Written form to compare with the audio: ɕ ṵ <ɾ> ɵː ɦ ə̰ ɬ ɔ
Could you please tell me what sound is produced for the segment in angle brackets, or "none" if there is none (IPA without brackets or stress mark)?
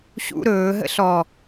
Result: ɾ